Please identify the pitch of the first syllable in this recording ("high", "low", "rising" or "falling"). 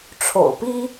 low